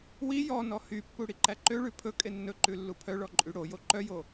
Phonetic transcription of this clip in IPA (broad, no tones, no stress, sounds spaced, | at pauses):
w i j ɔ n ɔ h y pː u ɽ i ǃ æ ǃ ø ɭ ʉ pʰ ɵ kʼ e nː ɵ ǃ ʉ lː u pʰ œ ɭ ɔ ǃʼ y ɽ o j o ǃ œ j o